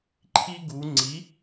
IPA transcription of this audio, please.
ǃʰi˦ɡu˩˧ŋ͡ǀi˩˥

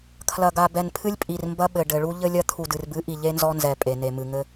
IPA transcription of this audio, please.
kʰlɐ˨ɡa˨ bɛ˨npʰɨ˦lʲpʼi˨rmbɐ˦ ɓɘ˨ɖɘ˨ɭu˦ ʎɘ˦lʲɐ˦ t̪ʰu˨dɨ˨rbɨ˨˦ʔi˨ ʎe˦nzɔ˦nzɛ˨ pʼe˨ne˨ mɨ˨ŋɘ˦

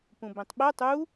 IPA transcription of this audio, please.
pũbẽtˤɓɛ tˤu

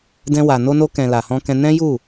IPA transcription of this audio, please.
dɛ̃˧wa˨ no˧no˧kɛ̃˨ la˨hɔ̃˧kɛ̃˧ nɛ̃˦ju˦˨

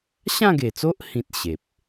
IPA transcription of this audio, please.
ɕã˥˧ɡe˨˩t͡so˦ʔ hĩ˦t̚ɕe˨p̚

